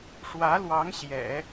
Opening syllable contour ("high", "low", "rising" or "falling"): rising